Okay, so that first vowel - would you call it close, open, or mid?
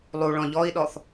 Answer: close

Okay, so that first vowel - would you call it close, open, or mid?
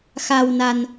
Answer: open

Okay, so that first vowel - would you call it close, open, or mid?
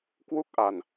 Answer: close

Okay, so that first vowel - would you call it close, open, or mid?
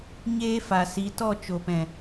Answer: mid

